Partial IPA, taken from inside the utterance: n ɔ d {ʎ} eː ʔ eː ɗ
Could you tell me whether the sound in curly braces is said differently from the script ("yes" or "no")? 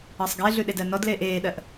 yes